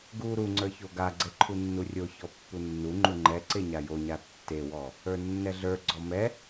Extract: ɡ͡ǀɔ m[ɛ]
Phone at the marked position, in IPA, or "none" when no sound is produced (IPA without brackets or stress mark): ɛ